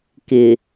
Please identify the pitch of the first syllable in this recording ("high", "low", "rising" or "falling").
low